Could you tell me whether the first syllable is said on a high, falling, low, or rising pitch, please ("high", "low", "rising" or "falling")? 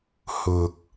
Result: low